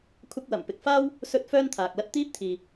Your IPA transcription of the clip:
kʷʰɐ˧k̚wɐ˨˩mpɪ˨k̚ faː˥w | sɵ˧t̚ fœː˥nt̪ʰaː˨k̚lɐ˥t̚ t̪iː˥p̚t̪ʰiː˨

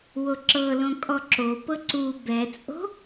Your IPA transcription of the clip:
woǁɤlõ kʼɔǁopɤ ǀu bɛt͡sʼo̤

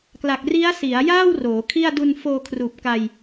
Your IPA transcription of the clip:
kla˨˩k̚ri˦˥a̯si˩˦a̯ jaː˥˩w roː˩˦kʰi˥˩a̯ du˧nfoː˧kʰruː˨˩p̚ ka˧j

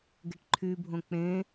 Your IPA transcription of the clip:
ɡeʈǃʰybʱõ k͡pẽ

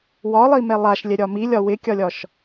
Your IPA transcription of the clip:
wɒlˠimɛ lˠaʃlʲɛɾʲɒ milʲɒ wɪkʲɒlʲɒʃ

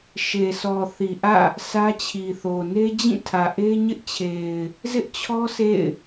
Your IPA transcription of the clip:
ʃe˨sʰɔ˨ θi˨ʔä̰˦˨ | sʰä˦t͡ɕʰi˨θo˨ ne˦d͡ʑĩ˦˨tʰä˨ʔe˦ ɲɪ˦ʔt͡ɕʰe˨ɪ̯ | zɪ˦ʔt͡ɕʰɔ˦ sʰḛ˦˨ɪ̯

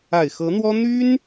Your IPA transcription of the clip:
a˨˩ɪ̯xɤ˧˥n̪wɔ˥ n̪y˥n

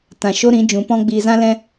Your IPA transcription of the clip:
tã˨ ʃo˦ɾĩ˨˦d͡ʒũ˨˦pɔ̃˦ ɡ͡biː˧zã˦lɛ̃˦

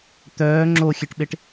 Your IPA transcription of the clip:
t̪œː ŋ͡ǁoxʲeʈɓeʈ

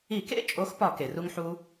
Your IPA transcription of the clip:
i˧˩˧kḛ˦˥t͡ʃʼo˨˦xpɒ˧˩˧ ke˩ru˦˥ŋħu˦˥

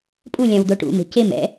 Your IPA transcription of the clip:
pʼu lʲãwd̪oʈṵ me̤cem ɛ̰

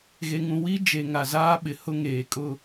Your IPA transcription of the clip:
ɣe˨ŋũ˨ wi˦ d͡ʒe˨ ŋa˨zaː˦ ɓɪ˨hʊ˦ ŋeː˨kʼʊ˦

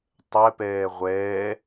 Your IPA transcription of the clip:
tˤɛpɛː ʁʷɛː

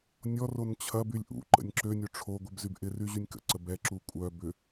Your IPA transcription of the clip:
nʲɔron t͡ɕʰɐbylʲ ʔṵ ǃə̰nʲǁønʲo ʈ͡ʂʰo ɡʷɪbzyb ʔɪry ʑynʲkə̰ǀə bɛǁu kʷʼœ bʏ

